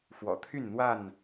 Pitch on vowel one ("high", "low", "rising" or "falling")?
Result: low